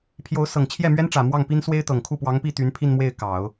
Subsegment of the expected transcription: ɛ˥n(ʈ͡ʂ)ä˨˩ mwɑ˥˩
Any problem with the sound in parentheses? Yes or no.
no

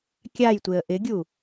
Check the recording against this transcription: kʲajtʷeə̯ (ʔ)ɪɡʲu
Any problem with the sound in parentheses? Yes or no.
no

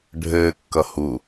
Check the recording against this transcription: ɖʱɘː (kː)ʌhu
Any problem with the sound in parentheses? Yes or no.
no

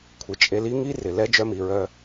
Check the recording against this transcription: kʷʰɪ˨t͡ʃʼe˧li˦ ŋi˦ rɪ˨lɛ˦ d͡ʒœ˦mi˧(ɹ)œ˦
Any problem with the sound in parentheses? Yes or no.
no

